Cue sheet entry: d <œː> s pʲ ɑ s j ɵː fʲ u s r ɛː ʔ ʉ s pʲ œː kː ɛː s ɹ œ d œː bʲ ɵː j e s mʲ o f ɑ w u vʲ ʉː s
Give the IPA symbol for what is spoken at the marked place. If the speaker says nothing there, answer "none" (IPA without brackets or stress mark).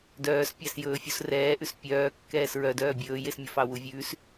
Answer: œː